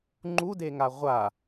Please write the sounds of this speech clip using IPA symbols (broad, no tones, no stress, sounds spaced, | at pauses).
ŋ͡ǃ u d e ŋ a ʁʷ a